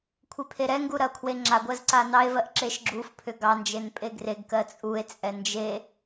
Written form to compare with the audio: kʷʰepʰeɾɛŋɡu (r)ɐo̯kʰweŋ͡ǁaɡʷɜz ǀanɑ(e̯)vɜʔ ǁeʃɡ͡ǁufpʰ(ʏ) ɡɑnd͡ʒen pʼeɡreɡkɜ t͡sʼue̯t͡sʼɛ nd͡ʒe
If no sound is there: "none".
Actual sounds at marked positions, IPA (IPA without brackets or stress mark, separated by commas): ɾ, e̯, ʏ